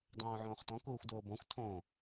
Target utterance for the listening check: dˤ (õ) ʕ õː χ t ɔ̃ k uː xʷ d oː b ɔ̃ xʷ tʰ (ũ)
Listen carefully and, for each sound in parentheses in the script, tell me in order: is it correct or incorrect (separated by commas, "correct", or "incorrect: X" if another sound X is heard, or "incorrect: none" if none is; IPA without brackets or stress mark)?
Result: incorrect: õː, incorrect: õ